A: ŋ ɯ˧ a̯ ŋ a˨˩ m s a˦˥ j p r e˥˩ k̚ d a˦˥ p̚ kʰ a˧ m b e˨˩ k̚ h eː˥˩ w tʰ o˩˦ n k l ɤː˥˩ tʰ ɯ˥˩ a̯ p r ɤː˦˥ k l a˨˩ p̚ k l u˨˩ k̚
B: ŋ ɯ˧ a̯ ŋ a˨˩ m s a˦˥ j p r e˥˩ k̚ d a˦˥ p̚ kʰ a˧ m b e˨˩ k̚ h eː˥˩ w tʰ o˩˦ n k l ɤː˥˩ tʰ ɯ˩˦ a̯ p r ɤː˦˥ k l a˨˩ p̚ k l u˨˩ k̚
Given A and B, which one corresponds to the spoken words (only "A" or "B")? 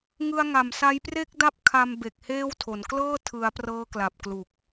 B